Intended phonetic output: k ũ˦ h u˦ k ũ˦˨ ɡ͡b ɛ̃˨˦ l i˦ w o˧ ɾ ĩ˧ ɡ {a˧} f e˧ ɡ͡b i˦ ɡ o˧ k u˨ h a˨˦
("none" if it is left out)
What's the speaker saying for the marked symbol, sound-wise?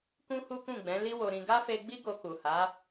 a˦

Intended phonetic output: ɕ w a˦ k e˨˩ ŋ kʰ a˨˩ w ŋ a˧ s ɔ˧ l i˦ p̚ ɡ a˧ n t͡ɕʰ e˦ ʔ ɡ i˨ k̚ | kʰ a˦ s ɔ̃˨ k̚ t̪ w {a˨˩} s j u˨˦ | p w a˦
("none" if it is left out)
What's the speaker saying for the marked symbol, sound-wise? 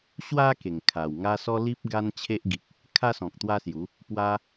a˦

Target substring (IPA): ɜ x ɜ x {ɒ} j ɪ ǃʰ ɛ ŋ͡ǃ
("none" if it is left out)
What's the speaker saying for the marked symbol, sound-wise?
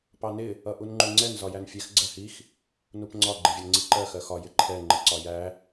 ɒ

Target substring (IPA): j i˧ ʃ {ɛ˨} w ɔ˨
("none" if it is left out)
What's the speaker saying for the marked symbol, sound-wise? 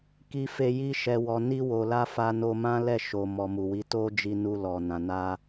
ɛ˨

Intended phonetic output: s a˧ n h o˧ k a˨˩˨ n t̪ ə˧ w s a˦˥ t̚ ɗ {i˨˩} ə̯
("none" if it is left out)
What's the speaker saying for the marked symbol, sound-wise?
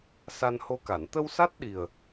i˨˩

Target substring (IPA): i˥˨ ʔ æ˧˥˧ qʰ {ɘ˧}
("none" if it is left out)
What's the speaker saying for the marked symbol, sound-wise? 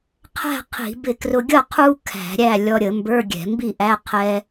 ɛ˧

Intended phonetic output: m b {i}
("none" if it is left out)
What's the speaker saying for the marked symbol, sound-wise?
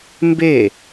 e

